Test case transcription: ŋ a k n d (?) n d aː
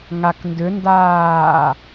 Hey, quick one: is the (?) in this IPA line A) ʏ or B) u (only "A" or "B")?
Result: A